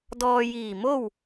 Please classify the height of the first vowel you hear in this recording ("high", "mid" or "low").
mid